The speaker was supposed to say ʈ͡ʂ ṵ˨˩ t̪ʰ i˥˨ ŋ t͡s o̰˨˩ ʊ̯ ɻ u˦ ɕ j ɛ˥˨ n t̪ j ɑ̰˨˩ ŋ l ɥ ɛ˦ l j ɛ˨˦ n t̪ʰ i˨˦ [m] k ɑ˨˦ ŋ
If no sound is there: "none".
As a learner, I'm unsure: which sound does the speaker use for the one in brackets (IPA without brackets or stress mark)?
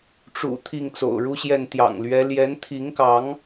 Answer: ŋ